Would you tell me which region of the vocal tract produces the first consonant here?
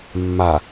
lips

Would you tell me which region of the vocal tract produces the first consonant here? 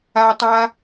tongue tip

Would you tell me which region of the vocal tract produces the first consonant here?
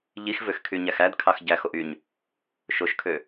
palate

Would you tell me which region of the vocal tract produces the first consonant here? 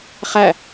uvula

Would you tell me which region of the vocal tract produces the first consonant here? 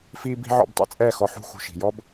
lips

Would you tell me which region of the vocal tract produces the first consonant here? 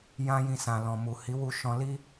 palate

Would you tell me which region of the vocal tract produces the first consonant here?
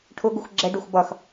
retroflex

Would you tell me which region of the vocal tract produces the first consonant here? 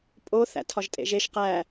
lips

